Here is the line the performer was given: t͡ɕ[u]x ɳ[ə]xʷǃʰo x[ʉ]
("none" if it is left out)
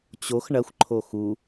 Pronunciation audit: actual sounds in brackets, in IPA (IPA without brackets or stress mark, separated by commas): o, ɐ, u